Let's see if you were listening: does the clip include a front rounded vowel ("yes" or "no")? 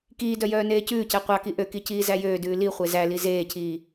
yes